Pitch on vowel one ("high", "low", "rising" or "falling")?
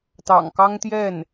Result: low